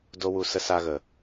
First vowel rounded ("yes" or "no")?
yes